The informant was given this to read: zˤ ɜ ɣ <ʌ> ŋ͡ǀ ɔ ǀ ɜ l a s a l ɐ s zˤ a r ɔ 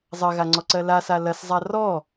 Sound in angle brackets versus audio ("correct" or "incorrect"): incorrect